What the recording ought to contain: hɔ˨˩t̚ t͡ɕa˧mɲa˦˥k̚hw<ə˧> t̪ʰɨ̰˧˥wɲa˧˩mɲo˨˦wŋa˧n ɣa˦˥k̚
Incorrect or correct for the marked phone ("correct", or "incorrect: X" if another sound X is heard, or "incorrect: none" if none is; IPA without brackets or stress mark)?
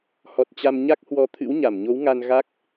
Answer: incorrect: ɔ˧